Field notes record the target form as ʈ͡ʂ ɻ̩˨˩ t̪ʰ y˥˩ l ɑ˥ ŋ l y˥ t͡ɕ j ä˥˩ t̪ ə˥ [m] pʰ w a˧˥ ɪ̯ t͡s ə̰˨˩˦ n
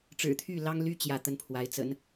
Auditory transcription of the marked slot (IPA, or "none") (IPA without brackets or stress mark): n